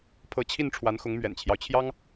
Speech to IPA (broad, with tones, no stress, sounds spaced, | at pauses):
pʰ ɤ˧˥ t͡ɕʰ i˥˩ n ʈ͡ʂʰ w a˧˥ n x ʊ˧˥ ŋ m ɥ ɛ̰˨˩ n t͡ɕʰ j ɑ˦ ʊ̯ t͡ɕʰ j ɑ˥ ŋ